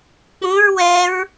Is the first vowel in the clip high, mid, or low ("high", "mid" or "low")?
high